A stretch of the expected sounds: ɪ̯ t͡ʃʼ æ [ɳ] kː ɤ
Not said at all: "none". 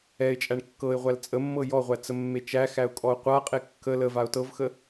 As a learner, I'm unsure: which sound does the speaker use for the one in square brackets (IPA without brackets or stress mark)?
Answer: ɳ